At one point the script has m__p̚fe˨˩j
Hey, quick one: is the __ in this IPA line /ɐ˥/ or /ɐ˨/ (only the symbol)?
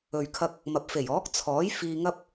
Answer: ɐ˨